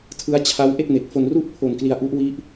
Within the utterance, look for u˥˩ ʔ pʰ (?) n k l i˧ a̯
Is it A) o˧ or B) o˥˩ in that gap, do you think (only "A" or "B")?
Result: A